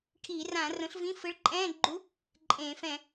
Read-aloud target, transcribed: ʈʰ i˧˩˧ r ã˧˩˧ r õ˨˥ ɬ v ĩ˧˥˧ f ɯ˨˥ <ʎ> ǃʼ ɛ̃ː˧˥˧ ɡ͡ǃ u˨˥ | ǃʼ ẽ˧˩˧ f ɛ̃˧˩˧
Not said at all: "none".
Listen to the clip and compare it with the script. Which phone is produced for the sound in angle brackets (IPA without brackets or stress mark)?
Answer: ɭ